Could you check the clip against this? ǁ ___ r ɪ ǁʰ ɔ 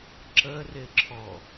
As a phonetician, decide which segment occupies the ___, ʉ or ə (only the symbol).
ə